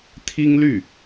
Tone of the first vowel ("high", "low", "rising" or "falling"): high